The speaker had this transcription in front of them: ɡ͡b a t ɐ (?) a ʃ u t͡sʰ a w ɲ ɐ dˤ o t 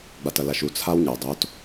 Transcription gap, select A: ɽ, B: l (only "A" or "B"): B